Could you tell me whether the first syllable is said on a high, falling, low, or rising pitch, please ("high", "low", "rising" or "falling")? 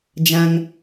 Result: high